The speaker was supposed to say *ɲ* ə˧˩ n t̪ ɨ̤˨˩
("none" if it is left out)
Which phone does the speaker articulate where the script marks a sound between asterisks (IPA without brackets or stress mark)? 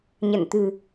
ɲ